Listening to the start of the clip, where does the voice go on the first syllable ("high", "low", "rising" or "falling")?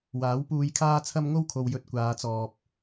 rising